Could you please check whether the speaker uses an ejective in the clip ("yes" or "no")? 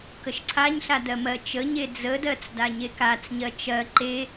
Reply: no